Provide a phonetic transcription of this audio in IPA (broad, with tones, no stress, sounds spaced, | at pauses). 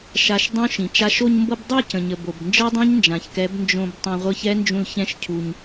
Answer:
ʃ a˧ ʃ dˤ õ˦ ʃ ĩ˨ t͡ʃ a˦ ʃ o˧ ɲ m b ɤ˧ b dˤ i˦˨ c ə̃˨ ɲ ə˨ b o˨ b n d͡ʒ ɤ˦ dˤ ɛ̃˦ ɲ n d͡ʒ ã˨ ç k ɛ˨˦ b n d͡ʒ õ˧ b tˤ ã˧ ʁʷ ɤ˦ ç ɛ˦ n d͡ʒ ũ˧ l ç ɛ̃˦ ʃ cʰ u˧ ɲ